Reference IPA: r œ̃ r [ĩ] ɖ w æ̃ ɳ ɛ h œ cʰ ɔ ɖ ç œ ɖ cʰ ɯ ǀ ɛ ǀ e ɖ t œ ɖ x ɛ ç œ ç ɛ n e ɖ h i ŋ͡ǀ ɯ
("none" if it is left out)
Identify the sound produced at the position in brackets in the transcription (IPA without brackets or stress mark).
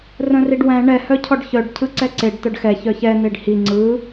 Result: i